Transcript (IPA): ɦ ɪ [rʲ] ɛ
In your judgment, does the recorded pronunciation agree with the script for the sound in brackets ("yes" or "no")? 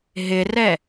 no